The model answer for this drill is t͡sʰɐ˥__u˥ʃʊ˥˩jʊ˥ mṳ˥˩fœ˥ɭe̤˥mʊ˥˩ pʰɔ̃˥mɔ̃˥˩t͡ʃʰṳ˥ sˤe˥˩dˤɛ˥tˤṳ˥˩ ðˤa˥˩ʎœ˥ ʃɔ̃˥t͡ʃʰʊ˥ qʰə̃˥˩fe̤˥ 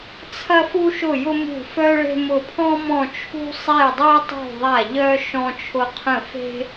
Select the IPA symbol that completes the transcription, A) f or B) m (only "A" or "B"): A